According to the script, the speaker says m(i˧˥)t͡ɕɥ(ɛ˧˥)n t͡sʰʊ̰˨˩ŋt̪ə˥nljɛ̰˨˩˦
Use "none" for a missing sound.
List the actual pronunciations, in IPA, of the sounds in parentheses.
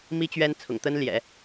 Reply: i˥, ɛ˥

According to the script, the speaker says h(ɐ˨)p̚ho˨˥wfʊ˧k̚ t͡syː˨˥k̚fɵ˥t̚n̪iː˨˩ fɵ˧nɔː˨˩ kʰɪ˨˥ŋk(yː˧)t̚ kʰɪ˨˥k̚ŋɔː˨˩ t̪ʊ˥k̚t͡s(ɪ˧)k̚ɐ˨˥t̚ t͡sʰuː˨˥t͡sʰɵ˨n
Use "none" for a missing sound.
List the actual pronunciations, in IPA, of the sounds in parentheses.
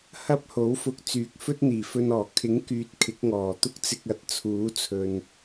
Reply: ɐ˥, yː˨, ɪ˧

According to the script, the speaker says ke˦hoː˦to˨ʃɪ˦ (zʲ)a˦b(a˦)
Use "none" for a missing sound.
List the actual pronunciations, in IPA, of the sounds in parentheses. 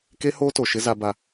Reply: z, a˦

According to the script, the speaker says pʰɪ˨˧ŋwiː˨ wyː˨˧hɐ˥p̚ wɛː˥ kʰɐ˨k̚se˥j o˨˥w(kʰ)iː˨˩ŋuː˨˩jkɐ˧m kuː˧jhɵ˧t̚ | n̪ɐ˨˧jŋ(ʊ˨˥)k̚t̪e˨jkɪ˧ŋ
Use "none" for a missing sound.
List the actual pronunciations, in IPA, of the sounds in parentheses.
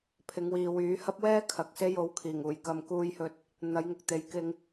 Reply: kʰ, ʊ˨

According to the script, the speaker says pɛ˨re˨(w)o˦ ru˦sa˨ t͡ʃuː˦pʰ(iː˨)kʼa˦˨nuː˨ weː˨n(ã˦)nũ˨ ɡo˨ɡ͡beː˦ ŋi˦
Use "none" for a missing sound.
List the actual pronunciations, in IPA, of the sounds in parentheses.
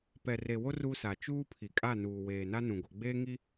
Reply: w, i˨, a˦

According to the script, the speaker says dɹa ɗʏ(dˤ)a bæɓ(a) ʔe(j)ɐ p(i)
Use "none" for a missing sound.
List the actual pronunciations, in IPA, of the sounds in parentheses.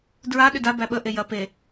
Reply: d, ə, j, e

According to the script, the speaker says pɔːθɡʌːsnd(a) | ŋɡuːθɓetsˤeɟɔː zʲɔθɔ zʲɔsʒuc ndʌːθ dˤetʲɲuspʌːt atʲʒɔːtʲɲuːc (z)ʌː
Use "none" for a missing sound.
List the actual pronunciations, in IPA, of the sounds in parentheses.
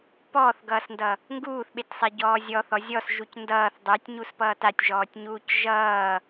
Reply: ʌ, ʒ

